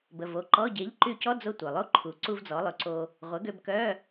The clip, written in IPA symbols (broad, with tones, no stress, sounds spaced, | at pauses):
b ə˩˧˩ v o˩˧˩ ǃ ɔ˧˥˧ ɟ e˩˥ ʎ ǃ y˧ c ɔ˧˥˧ d͡z o˧ tʷ œ˩ lˠ o˧˥˧ ǃʰ u˩˧ ǀ u˧ v d͡z ɔ˩˧ lˠ ø˩˧ ǀ o˧ | ʁʷ ə˩˥ ɡ ø˧ b k œ˧˥˧